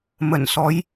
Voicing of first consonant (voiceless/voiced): voiced